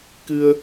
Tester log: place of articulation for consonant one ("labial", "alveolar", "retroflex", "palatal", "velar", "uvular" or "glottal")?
velar